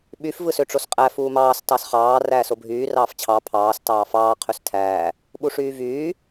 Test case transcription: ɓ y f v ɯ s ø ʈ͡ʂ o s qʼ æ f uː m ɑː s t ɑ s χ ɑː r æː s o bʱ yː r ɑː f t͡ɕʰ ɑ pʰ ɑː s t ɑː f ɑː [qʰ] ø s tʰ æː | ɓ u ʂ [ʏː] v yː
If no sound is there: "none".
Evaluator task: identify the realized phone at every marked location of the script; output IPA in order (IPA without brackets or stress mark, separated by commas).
qʰ, yː